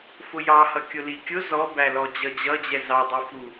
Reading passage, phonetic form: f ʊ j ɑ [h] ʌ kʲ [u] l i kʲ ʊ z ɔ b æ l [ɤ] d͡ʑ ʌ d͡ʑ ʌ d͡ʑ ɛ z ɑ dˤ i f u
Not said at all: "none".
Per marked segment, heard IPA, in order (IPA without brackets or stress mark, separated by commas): h, ʊ, ɔ